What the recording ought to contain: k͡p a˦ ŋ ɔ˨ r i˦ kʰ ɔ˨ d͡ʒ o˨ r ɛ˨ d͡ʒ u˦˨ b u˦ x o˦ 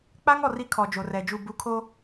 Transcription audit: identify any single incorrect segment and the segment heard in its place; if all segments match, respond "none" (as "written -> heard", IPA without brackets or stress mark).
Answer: x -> kʰ